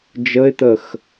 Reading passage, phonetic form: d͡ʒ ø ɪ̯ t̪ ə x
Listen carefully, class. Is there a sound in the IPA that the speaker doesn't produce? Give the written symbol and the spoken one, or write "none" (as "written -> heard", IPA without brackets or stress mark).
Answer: ø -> ə